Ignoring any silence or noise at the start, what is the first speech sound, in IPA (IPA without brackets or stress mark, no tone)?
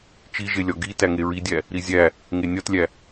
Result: t͡ʃ